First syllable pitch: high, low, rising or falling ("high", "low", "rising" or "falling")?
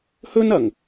high